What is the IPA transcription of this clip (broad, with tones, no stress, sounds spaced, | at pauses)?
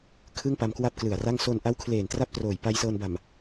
kʰ ɯ˥˩ ŋ p a˧ m k w a˥˩ p̚ k l ɯ˨˩ a̯ r a˥˩ ŋ s o˧ n ʔ a˦˥ w kʰ l eː˨˩ n t r a˥˩ p̚ t r oː˨˩ j p a˧ j s ɤː˧ n b a˨˩ m